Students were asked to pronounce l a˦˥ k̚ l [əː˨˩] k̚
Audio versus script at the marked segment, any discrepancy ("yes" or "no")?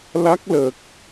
no